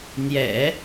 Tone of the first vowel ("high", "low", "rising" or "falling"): low